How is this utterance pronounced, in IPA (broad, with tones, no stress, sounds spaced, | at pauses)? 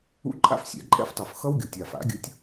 ṵ˦˥ ǃʼ a̰˥˧ f sʲ ɛ̰˨˩˦ ǃʼ ɛ̰˦˥ f tˤ o˨˩ f x ʌ˦˥ w ɡʲ o˨˩ tʲ a˨˩ f a̰˨˩˦ ɡʲ ɯ˨˦ tʲ